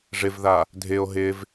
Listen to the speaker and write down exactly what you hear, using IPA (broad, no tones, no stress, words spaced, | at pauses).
ʐɪvða | dʱɪo̯ ɦɪv